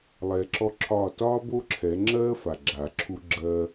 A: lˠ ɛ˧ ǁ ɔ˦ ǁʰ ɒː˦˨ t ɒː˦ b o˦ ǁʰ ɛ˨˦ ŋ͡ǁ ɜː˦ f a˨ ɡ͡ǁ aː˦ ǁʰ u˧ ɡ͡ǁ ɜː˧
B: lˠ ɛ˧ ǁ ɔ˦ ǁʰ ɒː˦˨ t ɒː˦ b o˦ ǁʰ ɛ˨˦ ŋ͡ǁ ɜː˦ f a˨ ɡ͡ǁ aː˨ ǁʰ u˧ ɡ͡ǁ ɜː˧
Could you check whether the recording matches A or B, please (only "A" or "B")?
B